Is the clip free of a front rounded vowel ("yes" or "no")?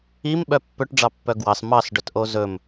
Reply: no